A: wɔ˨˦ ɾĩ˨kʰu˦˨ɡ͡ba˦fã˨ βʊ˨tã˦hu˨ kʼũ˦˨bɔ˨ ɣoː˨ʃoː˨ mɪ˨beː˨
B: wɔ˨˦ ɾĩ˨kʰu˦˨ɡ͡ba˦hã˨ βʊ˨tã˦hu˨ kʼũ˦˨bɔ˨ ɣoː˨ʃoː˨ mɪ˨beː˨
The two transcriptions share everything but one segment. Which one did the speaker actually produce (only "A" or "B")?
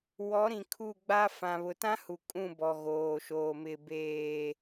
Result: A